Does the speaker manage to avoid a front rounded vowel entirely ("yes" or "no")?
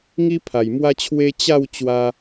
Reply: yes